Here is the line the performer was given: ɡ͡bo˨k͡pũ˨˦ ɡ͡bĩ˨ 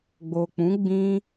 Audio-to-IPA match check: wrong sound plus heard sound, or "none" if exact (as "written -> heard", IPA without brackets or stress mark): ĩ˨ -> ĩ˦